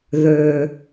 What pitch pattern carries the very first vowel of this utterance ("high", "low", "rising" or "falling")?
low